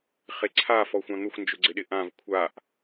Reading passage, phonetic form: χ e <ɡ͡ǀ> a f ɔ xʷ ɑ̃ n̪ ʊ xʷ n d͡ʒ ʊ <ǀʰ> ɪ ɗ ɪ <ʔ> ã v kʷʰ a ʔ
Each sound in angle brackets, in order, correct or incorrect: incorrect, incorrect, correct

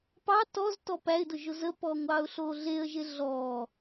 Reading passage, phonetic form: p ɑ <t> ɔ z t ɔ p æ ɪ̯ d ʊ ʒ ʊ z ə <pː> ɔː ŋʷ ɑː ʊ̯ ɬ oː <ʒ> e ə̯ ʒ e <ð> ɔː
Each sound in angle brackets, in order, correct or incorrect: correct, correct, incorrect, incorrect

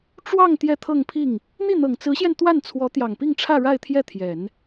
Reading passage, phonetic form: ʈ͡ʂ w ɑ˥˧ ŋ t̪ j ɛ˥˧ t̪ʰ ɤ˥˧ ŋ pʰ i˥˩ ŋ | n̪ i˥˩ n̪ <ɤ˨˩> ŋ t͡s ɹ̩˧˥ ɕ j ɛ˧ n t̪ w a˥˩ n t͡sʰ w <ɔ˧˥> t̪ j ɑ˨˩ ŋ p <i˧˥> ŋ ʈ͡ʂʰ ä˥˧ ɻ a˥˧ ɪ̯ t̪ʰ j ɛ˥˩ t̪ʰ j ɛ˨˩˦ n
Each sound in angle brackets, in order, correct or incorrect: correct, correct, incorrect

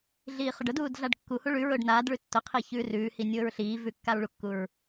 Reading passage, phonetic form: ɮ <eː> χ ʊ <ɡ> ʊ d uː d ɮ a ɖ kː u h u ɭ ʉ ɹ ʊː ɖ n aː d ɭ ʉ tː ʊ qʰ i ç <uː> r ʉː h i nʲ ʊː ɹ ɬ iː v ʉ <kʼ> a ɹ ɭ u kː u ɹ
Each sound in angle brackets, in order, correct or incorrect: incorrect, incorrect, incorrect, incorrect

